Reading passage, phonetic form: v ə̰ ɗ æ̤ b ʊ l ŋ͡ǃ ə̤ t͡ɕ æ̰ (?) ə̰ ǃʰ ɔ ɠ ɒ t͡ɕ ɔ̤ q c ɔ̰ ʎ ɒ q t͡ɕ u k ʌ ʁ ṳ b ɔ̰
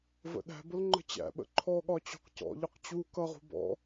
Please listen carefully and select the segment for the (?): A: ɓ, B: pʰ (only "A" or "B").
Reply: A